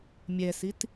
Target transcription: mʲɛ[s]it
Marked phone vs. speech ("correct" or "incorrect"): correct